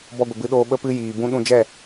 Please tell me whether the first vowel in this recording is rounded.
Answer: yes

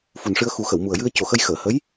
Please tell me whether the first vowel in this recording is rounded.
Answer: yes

